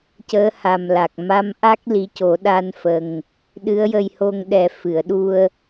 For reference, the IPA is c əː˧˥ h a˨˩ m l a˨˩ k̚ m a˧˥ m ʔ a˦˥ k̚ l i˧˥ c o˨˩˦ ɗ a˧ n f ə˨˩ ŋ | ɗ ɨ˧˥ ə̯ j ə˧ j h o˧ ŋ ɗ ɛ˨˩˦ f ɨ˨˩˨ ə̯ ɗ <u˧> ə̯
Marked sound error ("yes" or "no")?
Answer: no